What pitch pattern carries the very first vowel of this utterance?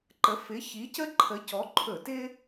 rising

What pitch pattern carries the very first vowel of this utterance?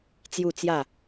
low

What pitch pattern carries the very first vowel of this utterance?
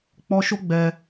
high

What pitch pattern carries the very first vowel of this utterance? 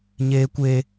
high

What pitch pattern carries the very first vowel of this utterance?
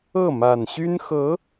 falling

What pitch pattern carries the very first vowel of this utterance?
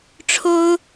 high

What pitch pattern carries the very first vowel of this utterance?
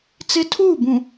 high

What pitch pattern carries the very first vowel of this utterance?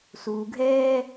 low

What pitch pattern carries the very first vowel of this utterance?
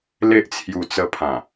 high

